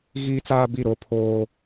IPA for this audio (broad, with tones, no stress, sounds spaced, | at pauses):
ɣ iː˦ t͡s aː˦ b i˦˨ ɾ o˦ pʰ oː˦